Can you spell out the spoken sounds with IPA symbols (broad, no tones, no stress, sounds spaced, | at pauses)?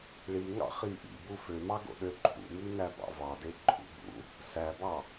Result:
ɭ i ŋ ɑ̰ χ i ʔ ḭ b u f ø m ɑ ɡ o̰ ɗ ø ǃʰ ṵ m y n æ b ɑ̰ v ɑ d e ǃʰ ṵ b ṵ | s æ b ɑ